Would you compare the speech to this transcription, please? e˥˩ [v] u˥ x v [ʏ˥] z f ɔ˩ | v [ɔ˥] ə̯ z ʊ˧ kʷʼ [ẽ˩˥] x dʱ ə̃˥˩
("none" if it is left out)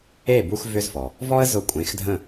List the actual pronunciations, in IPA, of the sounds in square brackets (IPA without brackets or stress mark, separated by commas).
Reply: b, ʏ˥, ɔ˥, ẽ˩˥